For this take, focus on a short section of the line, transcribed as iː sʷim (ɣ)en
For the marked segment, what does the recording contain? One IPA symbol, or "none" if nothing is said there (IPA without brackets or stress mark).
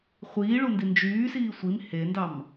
h